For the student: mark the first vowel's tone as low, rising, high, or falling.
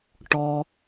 low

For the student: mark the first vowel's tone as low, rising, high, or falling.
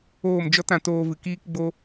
falling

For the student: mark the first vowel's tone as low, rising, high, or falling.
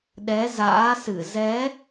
rising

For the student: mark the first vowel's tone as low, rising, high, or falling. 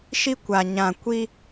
high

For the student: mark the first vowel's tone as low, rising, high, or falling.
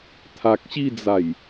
low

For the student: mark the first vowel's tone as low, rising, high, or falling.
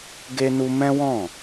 high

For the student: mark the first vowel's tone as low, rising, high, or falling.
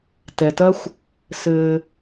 low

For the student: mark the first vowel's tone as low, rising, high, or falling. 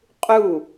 falling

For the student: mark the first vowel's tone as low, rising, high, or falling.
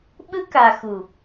high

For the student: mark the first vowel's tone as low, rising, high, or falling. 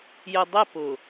low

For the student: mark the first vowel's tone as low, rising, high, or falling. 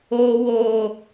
high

